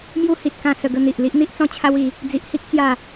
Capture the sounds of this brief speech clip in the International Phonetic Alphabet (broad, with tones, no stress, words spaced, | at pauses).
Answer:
mju˦ hi˨t̚kã˥˧ sə˧ɡə˧n̪i˨ʔ li˦ʔn̪i˦ʔt͡sɔ̃˥˧t͡ɕʰa˦w i˨˦ | d͡zi˨ʔhi˦k̚ t͡sja˥˧